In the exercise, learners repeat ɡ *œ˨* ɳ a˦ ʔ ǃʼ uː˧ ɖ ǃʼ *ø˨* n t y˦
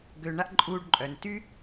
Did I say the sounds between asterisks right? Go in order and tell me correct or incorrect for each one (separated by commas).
incorrect, incorrect